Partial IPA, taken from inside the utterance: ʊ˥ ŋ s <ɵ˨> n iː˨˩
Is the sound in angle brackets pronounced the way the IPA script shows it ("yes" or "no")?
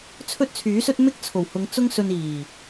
no